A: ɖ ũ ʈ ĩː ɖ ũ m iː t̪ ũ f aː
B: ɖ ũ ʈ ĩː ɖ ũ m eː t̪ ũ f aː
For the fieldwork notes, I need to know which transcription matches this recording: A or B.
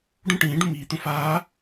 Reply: A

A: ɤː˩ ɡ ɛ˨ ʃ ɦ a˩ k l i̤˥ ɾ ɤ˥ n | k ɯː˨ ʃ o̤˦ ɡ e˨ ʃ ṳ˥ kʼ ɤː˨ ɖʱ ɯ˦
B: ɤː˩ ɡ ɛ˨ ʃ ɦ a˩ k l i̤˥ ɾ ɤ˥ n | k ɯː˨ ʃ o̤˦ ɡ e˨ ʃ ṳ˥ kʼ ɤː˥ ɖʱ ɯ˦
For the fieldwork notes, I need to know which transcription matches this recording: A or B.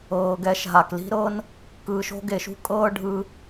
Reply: B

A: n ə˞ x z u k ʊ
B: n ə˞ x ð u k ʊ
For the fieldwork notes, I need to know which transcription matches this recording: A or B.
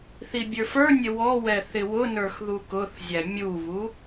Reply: B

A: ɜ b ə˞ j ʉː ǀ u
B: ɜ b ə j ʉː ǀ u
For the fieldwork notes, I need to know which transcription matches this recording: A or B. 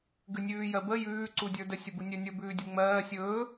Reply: B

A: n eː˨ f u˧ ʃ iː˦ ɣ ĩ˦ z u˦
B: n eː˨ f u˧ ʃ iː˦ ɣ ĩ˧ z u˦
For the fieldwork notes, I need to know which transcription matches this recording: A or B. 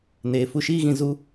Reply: B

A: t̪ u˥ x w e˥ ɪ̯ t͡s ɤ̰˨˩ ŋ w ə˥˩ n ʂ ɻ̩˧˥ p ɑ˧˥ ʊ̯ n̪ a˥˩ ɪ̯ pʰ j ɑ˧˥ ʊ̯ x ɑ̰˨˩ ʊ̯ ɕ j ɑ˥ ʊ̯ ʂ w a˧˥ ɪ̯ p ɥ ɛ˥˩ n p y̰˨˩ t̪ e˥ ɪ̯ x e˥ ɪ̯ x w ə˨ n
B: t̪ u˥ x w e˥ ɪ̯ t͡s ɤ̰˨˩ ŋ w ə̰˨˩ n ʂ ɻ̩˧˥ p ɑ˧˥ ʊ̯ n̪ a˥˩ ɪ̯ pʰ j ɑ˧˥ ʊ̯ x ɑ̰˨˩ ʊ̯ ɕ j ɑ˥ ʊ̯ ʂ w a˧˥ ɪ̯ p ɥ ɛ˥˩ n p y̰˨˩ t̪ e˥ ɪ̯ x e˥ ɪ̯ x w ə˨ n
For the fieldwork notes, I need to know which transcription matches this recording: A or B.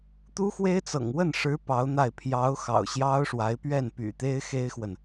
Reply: A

